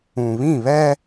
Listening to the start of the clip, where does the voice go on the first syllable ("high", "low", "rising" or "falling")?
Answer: low